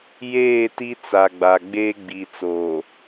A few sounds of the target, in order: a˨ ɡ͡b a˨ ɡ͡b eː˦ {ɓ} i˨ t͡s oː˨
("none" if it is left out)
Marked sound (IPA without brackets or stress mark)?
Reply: ɡ͡b